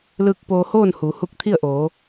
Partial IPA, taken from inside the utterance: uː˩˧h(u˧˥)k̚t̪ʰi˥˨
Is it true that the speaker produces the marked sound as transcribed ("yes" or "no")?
yes